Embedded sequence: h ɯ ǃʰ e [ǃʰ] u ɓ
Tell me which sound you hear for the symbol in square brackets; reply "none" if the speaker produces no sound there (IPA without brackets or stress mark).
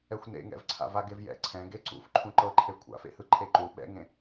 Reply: ǃ